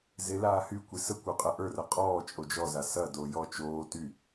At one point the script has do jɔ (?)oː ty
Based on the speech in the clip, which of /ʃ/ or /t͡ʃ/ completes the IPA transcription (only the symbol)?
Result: t͡ʃ